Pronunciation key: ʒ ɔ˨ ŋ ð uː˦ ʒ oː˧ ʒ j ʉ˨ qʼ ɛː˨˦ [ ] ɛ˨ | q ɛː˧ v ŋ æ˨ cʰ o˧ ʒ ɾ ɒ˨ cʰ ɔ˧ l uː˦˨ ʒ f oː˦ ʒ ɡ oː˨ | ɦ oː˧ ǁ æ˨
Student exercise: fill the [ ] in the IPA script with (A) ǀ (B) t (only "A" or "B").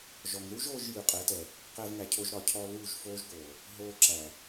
B